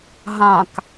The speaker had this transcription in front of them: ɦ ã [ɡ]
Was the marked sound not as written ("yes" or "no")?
yes